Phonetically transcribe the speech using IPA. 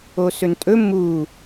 o s ɵ n tʼ ɵ m u

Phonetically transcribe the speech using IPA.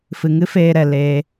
f ɨ˨ ŋ ɨ˦ f eː˧ ɾ ɛ˨ l eː˧

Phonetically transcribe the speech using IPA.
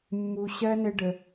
mː u˧ ɕ ɜ˦ n ɘ˦ ɖ ə˧

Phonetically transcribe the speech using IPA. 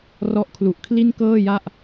r ɔ˦˥ ʔ kʰ l u˨˩ ʔ kʰ l i˥˩ n k ɤː˥˩ j a˥˩ ʔ

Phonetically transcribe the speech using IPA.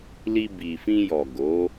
l i˧ b i˨ f ĩ˧ j ɔ˨ ɡ o˨˦

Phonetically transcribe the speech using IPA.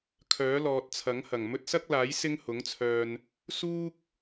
kʰ œː˨˥ l ɔː˨ t̚ t͡sʰ ɐ˨˥ ŋ h ɐ˨˩ ŋ m ɵ˧ t̚ s ɐ˥ k̚ l aː˨˥ j s ɪ˥ ŋ h ʊ˨˥ ŋ t͡sʰ œː˧ n | s uː˥ k̚

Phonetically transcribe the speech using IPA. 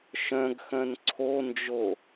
ʃ œ̃ ɡ x œ̃ n ǀʰ o n d͡ʒ o

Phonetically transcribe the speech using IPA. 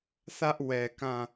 θ ä˦ ʔ w ɛ˨ k ã˦˨

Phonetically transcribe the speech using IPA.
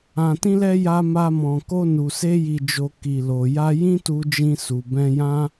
ã˨ t ĩ˧ l ɛ˧ j a˧ m a˧ m ɔ̃˨ k o˧ n u˨ s e˧ j i˨ d͡ʒ o˨ k i˨ l o˨ j a˧ j ĩ˦ t u˧ d͡ʒ ĩ˧ s u˨ b ɛ̃˧ j ã˦

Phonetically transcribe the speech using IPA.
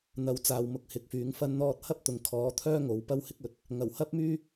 n̪ ɐ˨˥ w t͡s aː˨ w m ʊ˨˥ k̚ h ɪ˨ k̚ f yː˨˥ ŋ f ɐ˥ n n̪ ɔː˥ t̚ h ɐ˥ p̚ t̪ ʊ˨˧ ŋ kʰ ɔː˨˥ t̪ʰ œː˥ ŋ o˨˥ w p ɐ˥ w h ɪ˥ k̚ ɵ˨˥ t̚ | ŋ ɐ˨˩ w h ɐ˥ p̚ m yː˥

